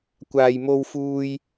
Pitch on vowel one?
low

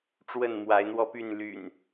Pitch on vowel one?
falling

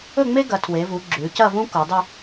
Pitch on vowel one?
falling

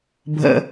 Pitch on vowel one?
low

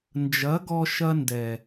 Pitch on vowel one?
rising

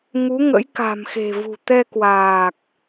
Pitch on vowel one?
rising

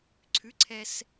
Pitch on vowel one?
rising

